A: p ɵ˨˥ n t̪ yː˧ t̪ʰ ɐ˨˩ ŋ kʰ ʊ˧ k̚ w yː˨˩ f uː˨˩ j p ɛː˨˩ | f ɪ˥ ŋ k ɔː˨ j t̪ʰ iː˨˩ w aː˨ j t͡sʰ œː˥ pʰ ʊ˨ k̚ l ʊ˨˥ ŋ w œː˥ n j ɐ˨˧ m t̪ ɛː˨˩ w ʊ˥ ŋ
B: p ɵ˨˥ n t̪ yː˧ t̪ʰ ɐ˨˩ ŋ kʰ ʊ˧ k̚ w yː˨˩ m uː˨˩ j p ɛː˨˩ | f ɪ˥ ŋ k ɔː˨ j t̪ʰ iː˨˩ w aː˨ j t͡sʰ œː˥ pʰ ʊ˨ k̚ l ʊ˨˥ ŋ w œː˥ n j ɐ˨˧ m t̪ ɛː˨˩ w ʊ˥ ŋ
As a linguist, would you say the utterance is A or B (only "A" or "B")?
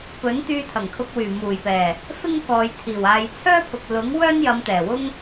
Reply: B